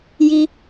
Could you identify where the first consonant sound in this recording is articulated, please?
palatal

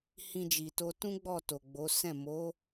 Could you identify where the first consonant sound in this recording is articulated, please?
glottal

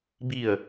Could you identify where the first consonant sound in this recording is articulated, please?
labial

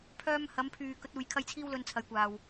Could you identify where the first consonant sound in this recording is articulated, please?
labial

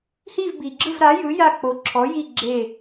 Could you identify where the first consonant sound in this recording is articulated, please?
glottal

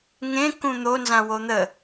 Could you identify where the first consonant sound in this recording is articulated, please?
velar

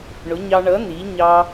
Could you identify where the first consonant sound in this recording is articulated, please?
retroflex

